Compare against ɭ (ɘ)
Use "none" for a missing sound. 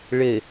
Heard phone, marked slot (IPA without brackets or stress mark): ɘ